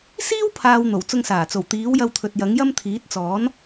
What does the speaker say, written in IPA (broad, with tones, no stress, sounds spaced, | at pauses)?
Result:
s iː˥ w pʰ aː˨ w n̪ o˨˩ w t͡s ʊ˧ ŋ s aː˨˩ t͡s o˨˩ w t̪ iː˨˥ w j ɐ˧ w t̪ʰ ɵ˨ t̚ j ɐ˨˥ ŋ j ɐ˥ m t̪ʰ iː˨˥ t̚ t͡s ɔː˨˥ n